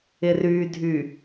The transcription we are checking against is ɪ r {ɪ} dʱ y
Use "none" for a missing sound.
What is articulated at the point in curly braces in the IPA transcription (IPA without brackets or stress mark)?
y